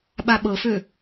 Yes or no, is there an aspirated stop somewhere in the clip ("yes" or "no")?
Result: no